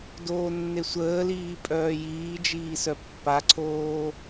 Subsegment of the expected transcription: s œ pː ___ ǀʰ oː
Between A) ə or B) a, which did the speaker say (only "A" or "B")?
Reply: B